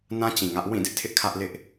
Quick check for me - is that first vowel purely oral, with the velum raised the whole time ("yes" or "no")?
no